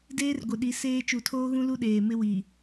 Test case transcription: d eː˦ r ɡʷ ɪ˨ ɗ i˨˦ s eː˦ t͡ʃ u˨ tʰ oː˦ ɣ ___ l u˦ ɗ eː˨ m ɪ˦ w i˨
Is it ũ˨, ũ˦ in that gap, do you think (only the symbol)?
ũ˦